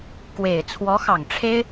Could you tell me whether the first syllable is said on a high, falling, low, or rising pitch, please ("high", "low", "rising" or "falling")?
low